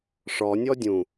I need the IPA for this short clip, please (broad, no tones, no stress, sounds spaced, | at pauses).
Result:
ʂ ɔ nʲ ɔ dʲ ũ